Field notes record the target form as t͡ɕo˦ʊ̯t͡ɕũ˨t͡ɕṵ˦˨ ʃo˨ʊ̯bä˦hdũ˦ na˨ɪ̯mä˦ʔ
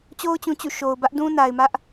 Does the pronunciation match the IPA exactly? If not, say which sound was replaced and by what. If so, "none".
h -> ʔ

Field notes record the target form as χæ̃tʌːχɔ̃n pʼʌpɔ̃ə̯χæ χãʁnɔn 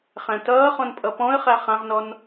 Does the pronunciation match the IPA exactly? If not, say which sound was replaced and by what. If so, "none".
none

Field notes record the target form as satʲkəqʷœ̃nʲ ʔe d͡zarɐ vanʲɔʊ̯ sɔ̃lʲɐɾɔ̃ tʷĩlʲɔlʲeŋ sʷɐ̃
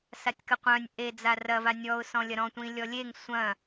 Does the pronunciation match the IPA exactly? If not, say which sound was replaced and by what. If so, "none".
none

